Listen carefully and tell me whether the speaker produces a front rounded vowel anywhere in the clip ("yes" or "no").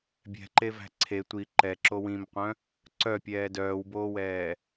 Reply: yes